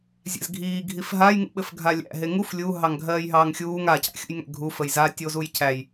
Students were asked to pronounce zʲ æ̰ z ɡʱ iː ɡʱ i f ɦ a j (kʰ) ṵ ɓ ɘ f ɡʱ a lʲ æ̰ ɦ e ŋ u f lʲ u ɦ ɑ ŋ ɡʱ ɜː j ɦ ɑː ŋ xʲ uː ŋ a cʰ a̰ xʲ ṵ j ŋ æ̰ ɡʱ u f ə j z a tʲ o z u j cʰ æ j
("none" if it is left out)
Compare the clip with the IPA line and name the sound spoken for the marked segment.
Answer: ŋ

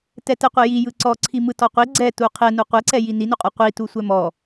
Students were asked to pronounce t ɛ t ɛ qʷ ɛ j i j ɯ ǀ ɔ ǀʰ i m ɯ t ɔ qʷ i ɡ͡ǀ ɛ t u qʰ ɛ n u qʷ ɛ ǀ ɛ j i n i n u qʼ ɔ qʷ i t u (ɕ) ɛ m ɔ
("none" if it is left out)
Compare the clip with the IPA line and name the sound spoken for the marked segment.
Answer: sʷ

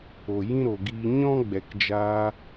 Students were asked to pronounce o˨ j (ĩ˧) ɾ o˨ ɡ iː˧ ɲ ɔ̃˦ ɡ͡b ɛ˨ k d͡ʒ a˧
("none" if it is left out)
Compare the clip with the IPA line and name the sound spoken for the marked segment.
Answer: ĩ˦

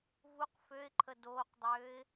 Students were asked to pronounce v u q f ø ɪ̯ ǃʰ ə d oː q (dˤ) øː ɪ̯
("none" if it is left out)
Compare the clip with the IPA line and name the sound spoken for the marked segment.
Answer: dˤ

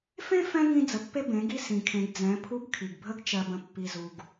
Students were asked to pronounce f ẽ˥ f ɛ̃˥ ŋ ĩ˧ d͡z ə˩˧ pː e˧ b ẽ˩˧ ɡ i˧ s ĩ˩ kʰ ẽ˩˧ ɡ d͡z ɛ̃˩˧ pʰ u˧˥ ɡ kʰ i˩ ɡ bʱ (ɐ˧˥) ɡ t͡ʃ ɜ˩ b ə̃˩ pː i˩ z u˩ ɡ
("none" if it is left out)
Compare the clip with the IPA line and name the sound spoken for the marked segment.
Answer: ə˧˥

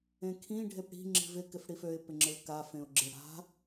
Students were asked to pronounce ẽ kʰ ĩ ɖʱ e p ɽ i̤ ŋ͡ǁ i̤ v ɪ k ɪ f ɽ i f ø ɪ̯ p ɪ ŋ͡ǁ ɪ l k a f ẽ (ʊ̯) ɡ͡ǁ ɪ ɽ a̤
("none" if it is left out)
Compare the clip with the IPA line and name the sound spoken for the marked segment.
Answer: ʊ̯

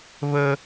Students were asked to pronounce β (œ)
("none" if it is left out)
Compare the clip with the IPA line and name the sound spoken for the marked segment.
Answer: ə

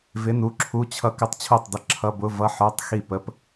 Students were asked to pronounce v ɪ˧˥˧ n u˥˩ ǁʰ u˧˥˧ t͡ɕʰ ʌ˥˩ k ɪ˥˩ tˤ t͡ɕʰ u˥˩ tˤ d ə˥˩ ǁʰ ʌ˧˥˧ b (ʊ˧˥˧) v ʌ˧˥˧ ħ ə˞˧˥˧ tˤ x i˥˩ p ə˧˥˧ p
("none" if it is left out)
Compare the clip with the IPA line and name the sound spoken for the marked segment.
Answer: ʊ˧˥˧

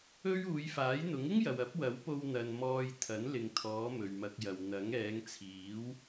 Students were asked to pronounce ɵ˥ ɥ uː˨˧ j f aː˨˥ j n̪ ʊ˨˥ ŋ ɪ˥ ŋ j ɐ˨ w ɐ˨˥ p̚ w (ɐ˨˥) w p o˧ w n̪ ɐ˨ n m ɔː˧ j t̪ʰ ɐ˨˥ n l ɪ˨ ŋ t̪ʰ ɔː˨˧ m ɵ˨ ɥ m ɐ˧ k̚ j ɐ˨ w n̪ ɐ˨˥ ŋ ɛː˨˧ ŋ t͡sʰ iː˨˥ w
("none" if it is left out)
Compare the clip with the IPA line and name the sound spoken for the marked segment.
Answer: ɐ˨˥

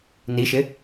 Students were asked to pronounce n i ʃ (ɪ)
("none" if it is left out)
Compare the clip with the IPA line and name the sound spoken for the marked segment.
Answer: ɪ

